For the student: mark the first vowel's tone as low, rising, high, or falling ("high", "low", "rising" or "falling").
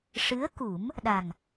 rising